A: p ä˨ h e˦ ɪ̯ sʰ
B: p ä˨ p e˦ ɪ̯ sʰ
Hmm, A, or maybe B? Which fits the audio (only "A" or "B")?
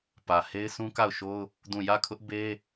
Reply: A